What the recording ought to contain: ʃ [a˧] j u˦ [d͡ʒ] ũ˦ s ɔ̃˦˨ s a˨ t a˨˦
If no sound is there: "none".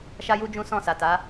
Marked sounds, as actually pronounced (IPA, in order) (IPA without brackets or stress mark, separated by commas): a˦, d͡ʒ